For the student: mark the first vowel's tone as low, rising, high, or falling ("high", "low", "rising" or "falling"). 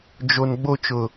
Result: low